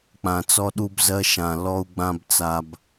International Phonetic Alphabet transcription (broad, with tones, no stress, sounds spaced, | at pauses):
k͡p ã˨ t͡s ɔ˦ ɗ u˦ b z ɜ˦ ʃ ã˨ l ɔ˦ u̯ ɡ͡b ã˦ b t͡s a˨ b